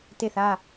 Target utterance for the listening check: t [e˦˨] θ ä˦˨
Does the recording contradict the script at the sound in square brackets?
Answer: no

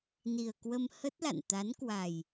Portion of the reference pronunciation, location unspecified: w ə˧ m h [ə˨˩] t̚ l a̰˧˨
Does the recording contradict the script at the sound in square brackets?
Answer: yes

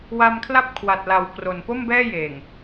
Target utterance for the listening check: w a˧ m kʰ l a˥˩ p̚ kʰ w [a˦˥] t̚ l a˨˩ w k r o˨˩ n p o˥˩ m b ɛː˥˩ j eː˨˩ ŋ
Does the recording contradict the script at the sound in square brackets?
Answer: yes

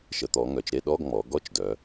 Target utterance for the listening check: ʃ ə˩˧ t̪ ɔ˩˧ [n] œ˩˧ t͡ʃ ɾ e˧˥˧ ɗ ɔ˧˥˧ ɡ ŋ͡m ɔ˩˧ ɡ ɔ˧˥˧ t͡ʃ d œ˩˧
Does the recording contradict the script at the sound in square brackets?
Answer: yes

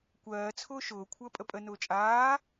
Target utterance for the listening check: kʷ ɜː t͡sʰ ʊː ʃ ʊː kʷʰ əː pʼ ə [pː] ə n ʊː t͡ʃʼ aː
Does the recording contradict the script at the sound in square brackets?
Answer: yes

